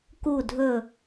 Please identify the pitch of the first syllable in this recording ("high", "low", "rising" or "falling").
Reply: falling